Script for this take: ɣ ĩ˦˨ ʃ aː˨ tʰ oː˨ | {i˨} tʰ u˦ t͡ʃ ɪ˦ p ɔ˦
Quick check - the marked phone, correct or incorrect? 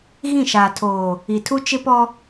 correct